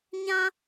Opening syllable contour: high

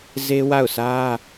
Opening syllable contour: high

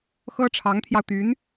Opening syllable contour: high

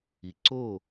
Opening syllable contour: low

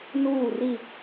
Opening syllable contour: falling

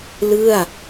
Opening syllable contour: falling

